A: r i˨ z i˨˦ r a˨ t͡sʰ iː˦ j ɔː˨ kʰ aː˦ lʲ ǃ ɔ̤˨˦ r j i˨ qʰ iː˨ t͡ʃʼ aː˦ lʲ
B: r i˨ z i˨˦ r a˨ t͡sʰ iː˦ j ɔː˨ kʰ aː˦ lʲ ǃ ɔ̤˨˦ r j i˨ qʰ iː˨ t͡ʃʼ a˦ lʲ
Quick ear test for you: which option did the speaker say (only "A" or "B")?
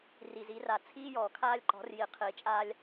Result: A